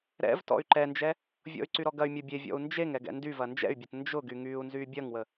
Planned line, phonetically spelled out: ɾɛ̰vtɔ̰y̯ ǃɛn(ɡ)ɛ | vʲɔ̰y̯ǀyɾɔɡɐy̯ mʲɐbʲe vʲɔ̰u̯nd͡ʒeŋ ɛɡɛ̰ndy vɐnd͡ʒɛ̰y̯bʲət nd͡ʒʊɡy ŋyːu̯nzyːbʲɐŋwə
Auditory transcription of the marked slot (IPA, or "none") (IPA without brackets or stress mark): d͡ʒ